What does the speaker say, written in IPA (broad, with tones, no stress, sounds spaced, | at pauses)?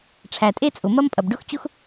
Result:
ʈ͡ʂʰ æ˩ tʼ e˥ t͡sʼ ʊ˩ m ɐ˥ m pʼ ɐ˩ b ɖ ʊ˥ x t͡ɕ ʊ˥ x